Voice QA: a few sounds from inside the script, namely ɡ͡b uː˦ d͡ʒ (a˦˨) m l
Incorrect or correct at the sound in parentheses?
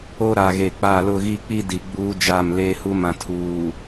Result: correct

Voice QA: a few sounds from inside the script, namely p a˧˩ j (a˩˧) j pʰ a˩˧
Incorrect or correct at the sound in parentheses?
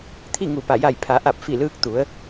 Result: incorrect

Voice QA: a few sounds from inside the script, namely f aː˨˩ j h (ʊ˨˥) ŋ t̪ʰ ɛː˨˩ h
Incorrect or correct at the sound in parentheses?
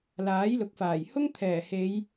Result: incorrect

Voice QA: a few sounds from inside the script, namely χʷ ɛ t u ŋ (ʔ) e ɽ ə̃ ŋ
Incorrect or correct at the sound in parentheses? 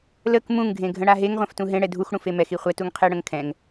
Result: incorrect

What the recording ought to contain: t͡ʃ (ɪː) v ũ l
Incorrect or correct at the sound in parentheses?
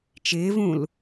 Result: correct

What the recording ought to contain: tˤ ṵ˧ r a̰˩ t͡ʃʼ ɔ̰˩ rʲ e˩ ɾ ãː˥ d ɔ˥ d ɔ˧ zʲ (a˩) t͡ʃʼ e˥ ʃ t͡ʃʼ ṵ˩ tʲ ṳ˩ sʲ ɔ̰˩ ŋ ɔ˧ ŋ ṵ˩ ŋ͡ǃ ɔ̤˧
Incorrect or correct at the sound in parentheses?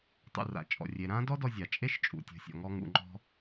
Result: correct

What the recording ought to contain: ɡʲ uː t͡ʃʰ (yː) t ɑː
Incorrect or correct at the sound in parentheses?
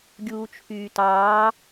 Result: correct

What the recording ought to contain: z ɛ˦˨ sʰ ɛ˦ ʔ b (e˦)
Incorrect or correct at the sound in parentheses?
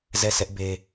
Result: correct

